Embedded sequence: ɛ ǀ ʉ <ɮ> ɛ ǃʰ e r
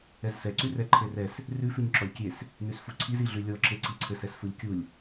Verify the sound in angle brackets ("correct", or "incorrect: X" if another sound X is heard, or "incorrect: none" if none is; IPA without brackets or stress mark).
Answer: incorrect: r